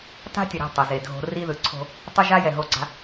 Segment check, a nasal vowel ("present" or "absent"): absent